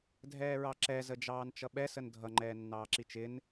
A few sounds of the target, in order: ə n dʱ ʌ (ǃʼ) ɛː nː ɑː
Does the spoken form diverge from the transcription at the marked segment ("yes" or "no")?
yes